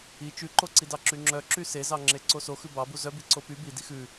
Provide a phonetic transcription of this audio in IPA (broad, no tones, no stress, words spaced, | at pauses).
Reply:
i t͡ʃʉǃoǀidɑ ǁyŋ͡ǁœǁy sezɑŋ͡ǁe ǀoso xʉbɑbu zœbiǀo py bi dixʉ